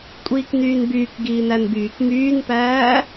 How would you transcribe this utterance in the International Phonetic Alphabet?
kʷʼiːknyːnbyːk ɡiːnænbyːk myːnpæː

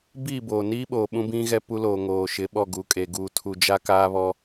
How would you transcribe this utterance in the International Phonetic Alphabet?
biː˦˨boː˨niː˦ɓoː˨ ɓũ˦bĩ˦ ɣɛ˦pu˦loː˨ ŋoː˨ʃɪ˨˦ɓɔ˦˨ ɡu˨kʼe˨ ɡuː˨tʰu˨d͡ʒa˦ kaː˦βɔ˦

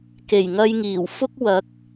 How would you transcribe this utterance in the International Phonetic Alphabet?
ke˨˩jŋɐ˧jŋiː˨˩w fʊ˥k̚ wɐ˨˥k̚

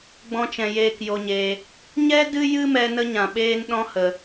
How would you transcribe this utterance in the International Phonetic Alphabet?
ɡ͡bɔ̃˧t͡ʃɛ̃˨ jeː˧kjo˧ɲeː˧ | ɲɛ˦ dɨ˦ jɨ˦mɛ˧ nə˦ɲã˨ɓeː˦nɗɔ̃˦ hə˧

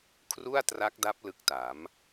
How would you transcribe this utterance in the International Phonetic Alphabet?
kʰru˥˩a̯tra˦˥k̚da˦˥p̚ lɯ˦˥k̚ta˩˦m

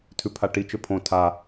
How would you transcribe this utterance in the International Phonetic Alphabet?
tʰʉpʰaʈi t͡ʃɵpʰõ tʰa

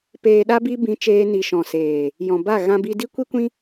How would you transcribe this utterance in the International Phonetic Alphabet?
peː˧ɗa˦ bi˦ bĩ˧t͡ʃeː˧ ni˨ʃɔ̃˨ seː˨ | jɔ̃˨ba˦˨ ɣã˧bi˧ di˦kʷi˦kʷĩ˦

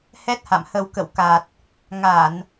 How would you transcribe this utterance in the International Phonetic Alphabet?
hɛ˦˥t̚ ha̰˧˨mhə˧w kə̰˧˨wka˨˩t̚ | ŋa˧˩˨n

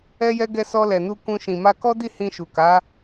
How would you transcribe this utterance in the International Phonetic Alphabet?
ɛ˦jɛ˦ ɡɛ˧sɔ˧lɛ˨nu˧ kũ˧ ʃĩ˨ma˧kɔ˦di˦˨ hĩ˧ʃu˨ka˨˦

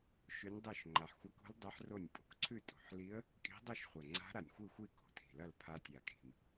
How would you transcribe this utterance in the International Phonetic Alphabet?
ʃʉ˧˥nʲdˤo˥˩ʃ ŋ͡ǃa˨˩ħxʷa˧˥kṳ˧˥l dˤʉ˧˥ħro˥˩nʲ pʼṳ˨˩kǀʰʉ˥˩ tʼṳ˨˩ħli˧˥ə̯ | kʼi̤˧˥dˤo˥˩ʃχʷɐ˨˩ŋ͡ǀa̤˧˥ ɾa˨˩nʲxʷi˥˩xʷi˥˩ ko̤˨˩tʰi̤˨˩lɐ˥˩l pʰa˧˥ tʲa˨˩kʼi̤˨˩m

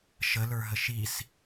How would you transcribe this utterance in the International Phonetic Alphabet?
ʃələ˞ ɦəʃis

